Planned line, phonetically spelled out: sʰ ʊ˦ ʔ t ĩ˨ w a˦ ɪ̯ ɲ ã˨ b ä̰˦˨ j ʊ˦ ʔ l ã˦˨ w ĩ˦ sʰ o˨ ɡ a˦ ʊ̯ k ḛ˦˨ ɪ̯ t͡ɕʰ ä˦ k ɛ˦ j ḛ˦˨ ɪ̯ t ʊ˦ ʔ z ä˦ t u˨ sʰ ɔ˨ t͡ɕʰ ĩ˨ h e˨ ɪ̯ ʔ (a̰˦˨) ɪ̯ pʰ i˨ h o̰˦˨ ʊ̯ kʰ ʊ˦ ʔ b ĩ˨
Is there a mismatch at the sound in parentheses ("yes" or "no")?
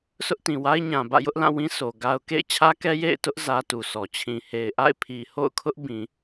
no